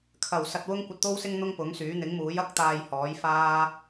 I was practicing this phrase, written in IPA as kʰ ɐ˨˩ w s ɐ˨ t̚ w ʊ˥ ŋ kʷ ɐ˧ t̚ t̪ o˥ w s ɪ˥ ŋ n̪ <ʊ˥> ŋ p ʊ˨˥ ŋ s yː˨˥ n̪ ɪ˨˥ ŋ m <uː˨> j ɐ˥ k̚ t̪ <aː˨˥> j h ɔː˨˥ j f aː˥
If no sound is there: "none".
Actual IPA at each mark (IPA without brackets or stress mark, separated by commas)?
ʊ˥, uː˨˥, aː˧